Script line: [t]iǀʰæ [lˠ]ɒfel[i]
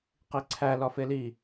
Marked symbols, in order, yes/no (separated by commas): no, no, yes